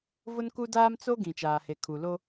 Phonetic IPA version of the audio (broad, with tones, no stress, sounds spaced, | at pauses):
v ʊ˦ n k u˦ d aː˦ m t͡s o˦ ɡ ĩ˨ t͡ʃ aː˨ h e˨ kʰ u˨ l o˦